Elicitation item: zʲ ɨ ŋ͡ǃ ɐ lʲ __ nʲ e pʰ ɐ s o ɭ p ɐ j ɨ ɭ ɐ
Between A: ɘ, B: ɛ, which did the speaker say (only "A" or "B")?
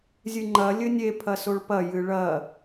A